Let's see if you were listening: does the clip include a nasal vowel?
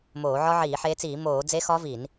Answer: no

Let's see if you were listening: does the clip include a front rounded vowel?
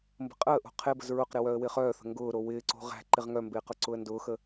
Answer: yes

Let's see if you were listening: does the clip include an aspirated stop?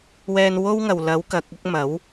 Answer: no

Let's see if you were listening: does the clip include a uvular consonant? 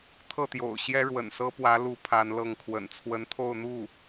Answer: no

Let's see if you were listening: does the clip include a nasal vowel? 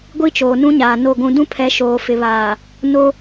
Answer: yes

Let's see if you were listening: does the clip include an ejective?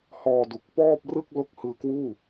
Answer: no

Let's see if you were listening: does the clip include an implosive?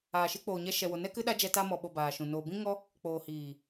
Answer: yes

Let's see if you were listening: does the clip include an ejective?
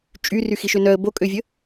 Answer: yes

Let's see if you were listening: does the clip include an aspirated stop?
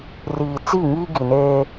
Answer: no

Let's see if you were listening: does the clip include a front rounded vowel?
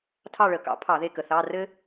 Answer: no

